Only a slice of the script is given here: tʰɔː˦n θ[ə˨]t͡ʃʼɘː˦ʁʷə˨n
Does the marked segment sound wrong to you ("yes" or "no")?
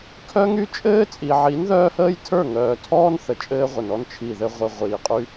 no